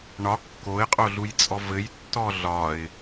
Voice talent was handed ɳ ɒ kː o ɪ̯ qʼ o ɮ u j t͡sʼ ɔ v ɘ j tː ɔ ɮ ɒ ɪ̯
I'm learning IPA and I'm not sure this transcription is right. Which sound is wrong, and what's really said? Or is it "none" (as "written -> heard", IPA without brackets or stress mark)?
none